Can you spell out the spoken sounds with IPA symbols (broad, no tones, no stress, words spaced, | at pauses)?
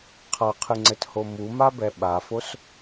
qʰaqʰɨŋ͡ǀɘtho mumabɛ ɓafos